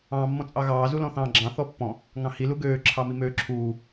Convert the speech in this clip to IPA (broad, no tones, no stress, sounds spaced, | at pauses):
ɑ̃ː mː ɔ̃ t͡sʼ ɑ ɣ ɑː z u l ɔ̃ θ ɑ̃ː ɡ͡ǁ ɑ̃ θ ɔ pː ɔ̃ | ŋ ɑ̃ h i l u ɡ øː ǁʰ ɑ m i m øː ǁʰ uː